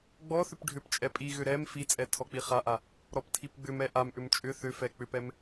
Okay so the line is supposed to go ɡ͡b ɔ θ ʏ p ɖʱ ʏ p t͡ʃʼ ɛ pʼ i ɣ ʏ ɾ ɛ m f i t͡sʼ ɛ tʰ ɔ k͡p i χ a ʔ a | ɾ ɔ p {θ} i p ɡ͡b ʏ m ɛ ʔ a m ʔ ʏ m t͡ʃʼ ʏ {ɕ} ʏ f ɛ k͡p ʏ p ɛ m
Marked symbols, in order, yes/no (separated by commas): no, no